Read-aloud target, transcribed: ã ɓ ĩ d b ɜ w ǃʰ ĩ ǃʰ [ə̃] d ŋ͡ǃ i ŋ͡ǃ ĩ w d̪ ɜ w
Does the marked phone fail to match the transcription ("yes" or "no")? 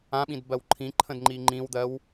no